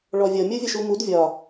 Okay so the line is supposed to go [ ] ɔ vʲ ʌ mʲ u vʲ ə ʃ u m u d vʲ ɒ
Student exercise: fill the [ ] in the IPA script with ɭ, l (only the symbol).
ɭ